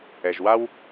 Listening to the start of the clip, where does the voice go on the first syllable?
low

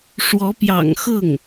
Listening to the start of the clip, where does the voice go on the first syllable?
rising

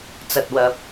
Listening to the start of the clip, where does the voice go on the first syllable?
low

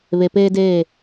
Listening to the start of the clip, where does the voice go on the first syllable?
low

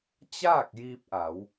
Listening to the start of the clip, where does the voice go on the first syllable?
falling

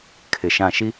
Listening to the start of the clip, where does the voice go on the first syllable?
low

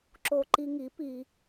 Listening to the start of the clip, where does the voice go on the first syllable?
low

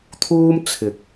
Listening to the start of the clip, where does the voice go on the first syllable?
high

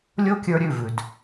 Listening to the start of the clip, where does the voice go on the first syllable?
high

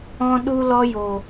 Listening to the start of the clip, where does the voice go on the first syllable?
high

